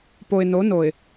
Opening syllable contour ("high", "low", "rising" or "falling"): low